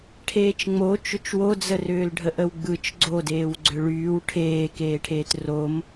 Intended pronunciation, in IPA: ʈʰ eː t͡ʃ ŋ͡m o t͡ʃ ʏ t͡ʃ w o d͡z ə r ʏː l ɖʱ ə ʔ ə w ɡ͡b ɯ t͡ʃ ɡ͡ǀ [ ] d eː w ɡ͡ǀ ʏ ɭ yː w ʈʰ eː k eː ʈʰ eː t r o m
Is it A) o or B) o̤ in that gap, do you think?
A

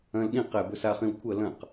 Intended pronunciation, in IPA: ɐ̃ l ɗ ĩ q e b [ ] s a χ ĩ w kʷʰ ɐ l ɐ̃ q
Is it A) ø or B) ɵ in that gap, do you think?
B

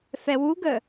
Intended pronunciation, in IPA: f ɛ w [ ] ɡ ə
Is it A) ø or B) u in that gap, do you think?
B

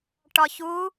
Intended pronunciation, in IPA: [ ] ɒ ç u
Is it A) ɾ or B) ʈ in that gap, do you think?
B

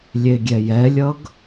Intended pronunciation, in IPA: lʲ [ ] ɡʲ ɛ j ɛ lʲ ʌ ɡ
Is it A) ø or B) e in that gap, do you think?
B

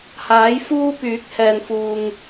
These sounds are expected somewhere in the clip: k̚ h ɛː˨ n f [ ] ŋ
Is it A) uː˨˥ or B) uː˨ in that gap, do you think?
B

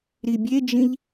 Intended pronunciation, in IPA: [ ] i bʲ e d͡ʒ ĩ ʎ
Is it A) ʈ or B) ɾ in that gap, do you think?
B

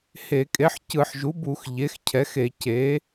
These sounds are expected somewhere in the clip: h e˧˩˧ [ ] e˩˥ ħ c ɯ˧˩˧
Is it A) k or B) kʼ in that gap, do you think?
B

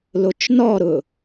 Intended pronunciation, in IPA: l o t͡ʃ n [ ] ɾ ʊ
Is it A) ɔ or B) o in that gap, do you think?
A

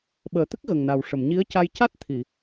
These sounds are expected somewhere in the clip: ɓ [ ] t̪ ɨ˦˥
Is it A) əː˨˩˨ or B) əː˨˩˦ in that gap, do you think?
A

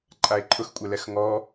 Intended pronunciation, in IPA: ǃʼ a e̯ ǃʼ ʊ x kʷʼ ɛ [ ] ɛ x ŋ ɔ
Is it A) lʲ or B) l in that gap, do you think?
B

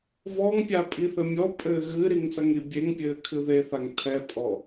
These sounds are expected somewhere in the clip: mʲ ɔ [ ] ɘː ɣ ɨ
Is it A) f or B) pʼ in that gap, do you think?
B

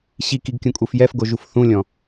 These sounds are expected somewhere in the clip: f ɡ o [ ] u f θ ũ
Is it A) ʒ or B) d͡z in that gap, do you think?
A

